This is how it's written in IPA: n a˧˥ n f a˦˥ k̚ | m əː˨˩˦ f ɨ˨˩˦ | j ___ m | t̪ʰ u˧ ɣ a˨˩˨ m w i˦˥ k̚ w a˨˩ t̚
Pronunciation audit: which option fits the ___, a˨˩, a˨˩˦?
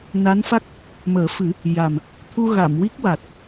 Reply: a˨˩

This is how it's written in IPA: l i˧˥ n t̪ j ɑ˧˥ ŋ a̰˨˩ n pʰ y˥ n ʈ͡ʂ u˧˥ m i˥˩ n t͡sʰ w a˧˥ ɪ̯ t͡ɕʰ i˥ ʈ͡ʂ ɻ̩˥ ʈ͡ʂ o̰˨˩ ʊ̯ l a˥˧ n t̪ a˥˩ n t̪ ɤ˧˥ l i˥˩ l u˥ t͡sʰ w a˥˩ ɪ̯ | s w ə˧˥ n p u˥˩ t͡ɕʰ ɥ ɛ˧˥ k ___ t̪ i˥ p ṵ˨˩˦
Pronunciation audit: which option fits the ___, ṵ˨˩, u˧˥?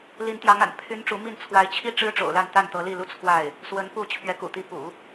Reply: ṵ˨˩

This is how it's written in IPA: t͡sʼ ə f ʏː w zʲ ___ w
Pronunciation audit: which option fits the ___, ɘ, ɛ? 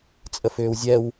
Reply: ɛ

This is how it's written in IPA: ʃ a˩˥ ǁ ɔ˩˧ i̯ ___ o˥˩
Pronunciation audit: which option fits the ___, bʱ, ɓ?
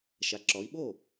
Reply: ɓ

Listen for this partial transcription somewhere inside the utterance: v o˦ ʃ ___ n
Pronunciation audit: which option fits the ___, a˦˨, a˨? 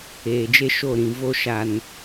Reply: a˨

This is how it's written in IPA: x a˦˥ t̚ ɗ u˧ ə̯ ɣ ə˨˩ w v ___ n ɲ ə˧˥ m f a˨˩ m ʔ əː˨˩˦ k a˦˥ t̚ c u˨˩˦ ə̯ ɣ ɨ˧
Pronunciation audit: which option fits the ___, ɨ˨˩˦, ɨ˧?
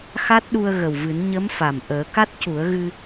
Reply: ɨ˨˩˦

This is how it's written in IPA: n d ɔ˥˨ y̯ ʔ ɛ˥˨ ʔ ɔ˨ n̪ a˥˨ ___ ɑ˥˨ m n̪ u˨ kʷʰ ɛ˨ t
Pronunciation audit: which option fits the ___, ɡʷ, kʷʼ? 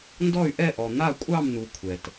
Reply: kʷʼ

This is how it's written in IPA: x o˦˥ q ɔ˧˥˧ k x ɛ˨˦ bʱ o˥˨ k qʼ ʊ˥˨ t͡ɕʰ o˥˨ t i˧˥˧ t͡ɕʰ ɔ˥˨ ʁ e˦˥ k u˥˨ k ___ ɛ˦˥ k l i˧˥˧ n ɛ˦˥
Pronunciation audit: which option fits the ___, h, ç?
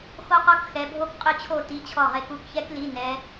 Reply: ç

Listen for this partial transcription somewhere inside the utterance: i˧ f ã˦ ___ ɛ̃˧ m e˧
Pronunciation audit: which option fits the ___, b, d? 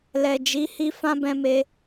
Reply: b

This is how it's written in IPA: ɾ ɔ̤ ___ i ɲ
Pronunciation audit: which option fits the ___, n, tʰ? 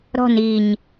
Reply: n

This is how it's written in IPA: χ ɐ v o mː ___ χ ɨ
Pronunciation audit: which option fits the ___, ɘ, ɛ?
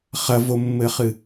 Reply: ɘ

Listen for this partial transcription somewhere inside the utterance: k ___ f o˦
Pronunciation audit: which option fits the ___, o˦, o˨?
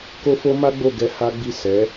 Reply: o˦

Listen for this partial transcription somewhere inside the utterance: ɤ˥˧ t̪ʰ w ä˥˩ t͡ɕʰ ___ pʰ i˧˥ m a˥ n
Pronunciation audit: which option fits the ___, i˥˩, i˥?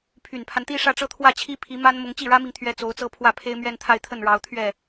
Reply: i˥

